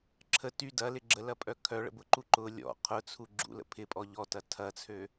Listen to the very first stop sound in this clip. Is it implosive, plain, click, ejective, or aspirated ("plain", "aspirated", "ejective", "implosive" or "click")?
click